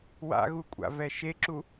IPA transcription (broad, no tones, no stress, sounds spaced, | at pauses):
w a̰ ɣ u kʷʼ a̰ v ɛ ʃ e ǁ u